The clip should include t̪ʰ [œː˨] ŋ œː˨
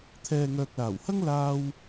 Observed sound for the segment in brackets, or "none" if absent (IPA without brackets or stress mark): ɛː˨